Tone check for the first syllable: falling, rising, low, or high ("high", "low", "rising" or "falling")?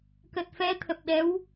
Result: low